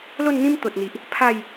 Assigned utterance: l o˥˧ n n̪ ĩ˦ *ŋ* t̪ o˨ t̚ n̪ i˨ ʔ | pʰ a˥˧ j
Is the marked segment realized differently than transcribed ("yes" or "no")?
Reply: yes